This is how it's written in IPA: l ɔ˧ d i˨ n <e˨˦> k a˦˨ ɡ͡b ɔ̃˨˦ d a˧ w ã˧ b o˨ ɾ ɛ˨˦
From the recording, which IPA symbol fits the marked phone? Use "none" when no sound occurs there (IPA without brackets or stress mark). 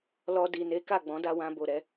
e˨˦